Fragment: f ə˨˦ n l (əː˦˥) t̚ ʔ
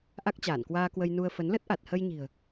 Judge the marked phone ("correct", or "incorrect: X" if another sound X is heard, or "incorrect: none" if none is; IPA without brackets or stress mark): incorrect: ə˦˥